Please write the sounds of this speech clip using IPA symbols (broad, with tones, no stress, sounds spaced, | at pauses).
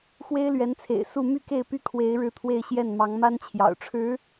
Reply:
x w e˥ ɪ̯ l ɥ ɛ˧˥ n t͡sʰ ḛ˨˩ ɪ̯ s u˥˧ m y˥˧ k e˥˩ ɪ̯ p y˥ kʰ w e˧˥ ɪ̯ ɻ ɻ̩˥˧ t̪ʰ w e˥˧ ɪ̯ ɕ j ɛ˥˩ n m ɑ˧˥ ŋ m a˥ n t͡ɕʰ j ɑ̰˨˩ ʊ̯ ʈ͡ʂʰ ɻ̩˧˥